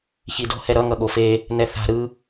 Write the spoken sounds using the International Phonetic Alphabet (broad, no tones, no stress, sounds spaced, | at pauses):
ç i d o̤ h ɛ ɾ ʌ ŋ ʌ ɠ o f e | n ɛ θ a̤ ɾ ɯ